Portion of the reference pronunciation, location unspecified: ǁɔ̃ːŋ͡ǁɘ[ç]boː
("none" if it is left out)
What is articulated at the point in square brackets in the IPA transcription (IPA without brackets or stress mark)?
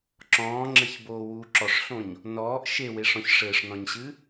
ç